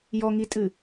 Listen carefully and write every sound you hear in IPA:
j ɔ ŋ i tʼ ɨ

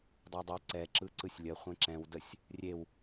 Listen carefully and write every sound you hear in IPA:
dˤ ɛ dˤ ɯ ǀ ɛ ǁ ɯ ǀ ɯ sʲ lʲ ə χʷ ẽ ǁ ɛ̃ w d ə sʲ | rʲ e w

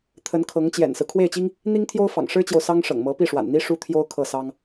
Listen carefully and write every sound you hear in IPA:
t̪ʰ ə˧˥ n kʰ ɤ˧˥ ŋ t͡ɕ j ɛ̰˨˩ n s ɹ̩˦ kʰ w e˥˩ ɪ̯ t͡ɕ i˥ ŋ | n̪ i˥ ŋ t̪ʰ j o˥ ʊ̯ f ɑ̰˨˩ ŋ ʂ ɻ̩˥ t͡ɕ j o˨ ʊ̯ s ɑ˥ ŋ ʂ ɤ̰˨˩ ŋ m ɤ˧˥ p i˥˩ ʂ w a̰˨˩ n n̪ i˥ ʂ u˥ t̪ʰ j o˥ ʊ̯ kʰ ɤ˥˩ s ɑ˥ ŋ

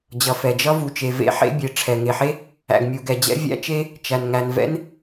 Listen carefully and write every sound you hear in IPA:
d͡ʑ ʌ˩ f ɛ˩ d͡ʒ ʌ˥ v u˩ t͡ʃ e˩ v ḛ˥ ħ ḛ˥ bʲ e˩ ʈ͡ʂʰ ɛ˩ ŋ e˩ ħ e˥ | æ̰˩ ɡ mʲ u˩ ɡ ɛ˩ d͡ʑ ɛ̰˥ vʲ æ̰˥ t͡ʃ e˥ | t͡ʃ æ˩ n ŋ æ˩ n v ɛ̰˥ n

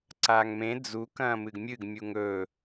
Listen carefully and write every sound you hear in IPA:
ǀ aː ŋ m ẽ d͡z u k ɐ̃ː m ɨ ɡ mʲ ɨ ɡ mʲ u ŋ ɵ

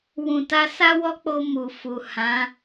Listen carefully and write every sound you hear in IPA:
w ũ˨ t a˧ s a˦ w ɔ˦ k͡p o˧ m u˨ f u˨ h ã˨˦

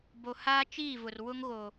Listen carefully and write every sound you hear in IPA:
b o˨ h aː˦ t͡ʃ iː˦˨ v ʊ˨ r w ʊ˦ ŋ ɣ o˨

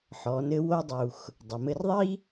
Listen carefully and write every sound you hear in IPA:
ħ ɔ˩˧ n ɘ˧ w o˧ dˤ u˩ x | dˤ ɐ˩ m ɘ˧ r ðˤ i˥

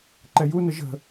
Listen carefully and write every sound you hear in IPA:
ǃ ɛ j u n ə ʒ ə̤

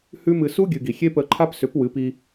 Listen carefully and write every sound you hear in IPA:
h ʉ˦ m ɨ˧ s u˦ ɡʲ ɨ˨ ɡ i˨ xʲ e˦ p ə˧ ǃʰ a˦ p s ʏ˨˦ p w ɨ˨˦ p i˧

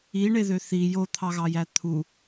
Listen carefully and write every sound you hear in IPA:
i ɳ e ð ø θ i j o t̪ʰ ɑ ɣ ɑ j æ t̪ʰ u

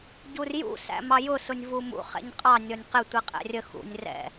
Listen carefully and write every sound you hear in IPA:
ɟ u r j ṵ s æ̰ m ɑ j ʊ s ʊ nʲ v u m ṵ χ ɛ̰ ɲ qʼ ɑ nʲ ɔ nʲ q ɪ tʷ i qʼ ɛ̰ rʲ ə x ṵ nʲ r ɛ̰

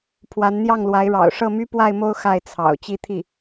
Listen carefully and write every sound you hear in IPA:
pʰ w a˧˥ n n̪ j ɑ˥˩ ŋ l w a˧˥ ɪ̯ ɻ ɑ̰˨˩ ʊ̯ ʂ ɤ˥˩ m y˥ p w a˥˧ ɪ̯ m o˥˧ ʊ̯ x a˥˩ ɪ̯ t͡sʰ ɑ̰˨˩ ʊ̯ t͡ɕ i˥˧ t̪ʰ i˥˩

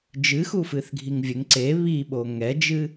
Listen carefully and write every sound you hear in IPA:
d͡ʒ ɨ x u f ɨ θ ɡʱ i ŋ vʲ ɘ ŋ ǀ e β i ɓ o ŋ ɛ d͡ʒ ɨ

